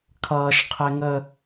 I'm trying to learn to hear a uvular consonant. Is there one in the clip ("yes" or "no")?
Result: yes